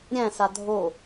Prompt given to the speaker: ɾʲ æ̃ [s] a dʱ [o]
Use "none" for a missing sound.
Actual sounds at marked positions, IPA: s, o

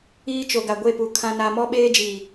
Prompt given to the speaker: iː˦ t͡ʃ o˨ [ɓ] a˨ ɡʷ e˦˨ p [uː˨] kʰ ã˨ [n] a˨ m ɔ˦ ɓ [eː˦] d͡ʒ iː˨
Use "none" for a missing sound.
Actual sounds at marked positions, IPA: ɡ, u˨, n, eː˦

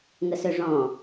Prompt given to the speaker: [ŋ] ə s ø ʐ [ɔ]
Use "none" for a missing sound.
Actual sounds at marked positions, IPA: ŋ, ɔ̃

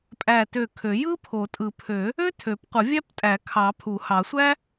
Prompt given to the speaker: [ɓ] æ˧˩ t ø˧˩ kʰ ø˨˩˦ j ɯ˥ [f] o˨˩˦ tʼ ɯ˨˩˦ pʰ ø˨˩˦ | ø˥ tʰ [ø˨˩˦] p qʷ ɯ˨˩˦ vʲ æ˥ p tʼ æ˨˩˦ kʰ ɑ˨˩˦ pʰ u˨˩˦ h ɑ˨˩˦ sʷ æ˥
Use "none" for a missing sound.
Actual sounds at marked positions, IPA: pʼ, pʰ, ø˨˩˦

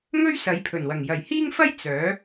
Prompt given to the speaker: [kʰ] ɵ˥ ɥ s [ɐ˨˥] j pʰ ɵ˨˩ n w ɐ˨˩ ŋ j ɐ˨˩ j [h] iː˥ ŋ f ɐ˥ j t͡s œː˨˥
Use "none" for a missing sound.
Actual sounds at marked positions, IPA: ŋ, ɐ˨˥, h

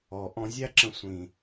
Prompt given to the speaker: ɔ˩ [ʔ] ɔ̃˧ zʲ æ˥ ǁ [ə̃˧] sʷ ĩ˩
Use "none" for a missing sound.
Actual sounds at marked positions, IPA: ʔ, ə̃˧

